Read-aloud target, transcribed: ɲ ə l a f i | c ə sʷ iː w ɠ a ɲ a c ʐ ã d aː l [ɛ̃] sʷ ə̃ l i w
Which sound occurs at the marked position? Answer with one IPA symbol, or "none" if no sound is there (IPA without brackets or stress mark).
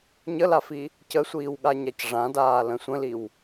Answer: ə̃